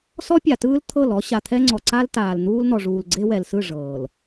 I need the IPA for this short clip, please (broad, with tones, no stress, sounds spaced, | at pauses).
s ɔ˦ pʲ a˨ t ɯː˦ l t̪ʰ ɤ˦˨ l ɔ˦ ɕ a˨ t̪ʰ ɛ˦ ŋ͡ǀ ɔ˨ ǀ a˦ l t aː˨ l n̪ uː˦ l n̪ ɔ˨ ʐ uː˨ l ɡ͡ǀ e˦ w ɛ˨ l s ɯ˦˨ ʐ ɤː˨ l